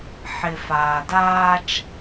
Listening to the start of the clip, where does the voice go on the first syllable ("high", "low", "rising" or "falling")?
low